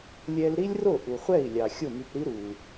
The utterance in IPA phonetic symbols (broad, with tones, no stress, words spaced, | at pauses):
lʲɛ˧l ɾi˥lʲro˥˩ ʔu˩χʷɛ˥˩i̯lʲɑ˩ xʲo˥˩my˧pɾi˥ ɾu˩